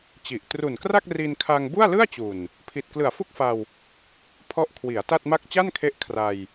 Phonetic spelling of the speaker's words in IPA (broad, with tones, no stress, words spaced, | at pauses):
t͡ɕi˨˩ʔ tru˨˩nkra˥˩k̚ ri˧nkʰa˧ŋ bu˥˩a̯lɯ˥˩a̯t͡ɕu˨˩n | pʰi˨˩t̚klɯ˨˩a̯fu˥˩k̚fa˧w | pʰɔ˦˥ʔkʰwi˩˦a̯ ta˥˩t̚ma˥˩k̚ t͡ɕa˥˩nkʰe˦˥ʔ kʰra˧j